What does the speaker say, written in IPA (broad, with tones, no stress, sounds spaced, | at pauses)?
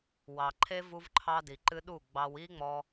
w ɑ˨ ǃʰ e˦ v u˦ v ǃʰ ɑ˦ d i˨ ǃ ɨ˦ ɗ u˦˨ ɡ͡b ɑ˧ w i˦ ŋ͡m ɔ˧